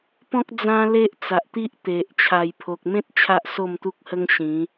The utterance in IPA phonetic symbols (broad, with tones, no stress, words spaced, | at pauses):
pɔ̃˦k̚ d͡zã˦le˦ʔ t͡sa˨ʔt̪i˦ʔ t̪e˨ʔ t͡ɕʰa˨˩jpʰo˨k̚mẽ˦t̚ t͡ɕʰa˦ʔso˥˧mt̪u˦k̚hə˦ŋ ɕĩ˨˦